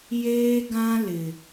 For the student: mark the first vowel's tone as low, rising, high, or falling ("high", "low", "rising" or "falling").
high